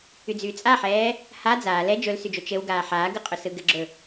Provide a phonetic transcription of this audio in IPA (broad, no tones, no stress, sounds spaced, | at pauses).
y d͡z yː t͡sʼ a ħ ɛː | h a d͡z aː l ɛ d͡ʒ ɵ l s y d͡ʒ o t͡ʃ ɘ w ɡ aː ħ aː ɡ ɯ qʼ ɵ s ɯ ɡ ɘ ɡ͡ǁ ɵ